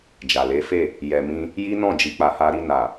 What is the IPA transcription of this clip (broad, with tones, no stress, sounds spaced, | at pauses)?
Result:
d͡ʒ a˨ l e˨˦ f e˦˨ | j ɛ˨ m ĩ˧ | j i˦ n ɔ̃˦˨ d͡ʒ i˨ k͡p a˨ h a˧ ɾ i˧ n a˨